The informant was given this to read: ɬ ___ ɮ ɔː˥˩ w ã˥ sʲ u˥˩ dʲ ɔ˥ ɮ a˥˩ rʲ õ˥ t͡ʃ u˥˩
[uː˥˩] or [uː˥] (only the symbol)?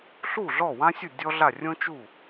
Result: uː˥˩